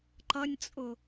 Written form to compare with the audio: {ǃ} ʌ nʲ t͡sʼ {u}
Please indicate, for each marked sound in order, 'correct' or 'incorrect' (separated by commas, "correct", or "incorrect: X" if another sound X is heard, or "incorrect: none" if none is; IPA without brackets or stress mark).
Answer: correct, incorrect: ʊ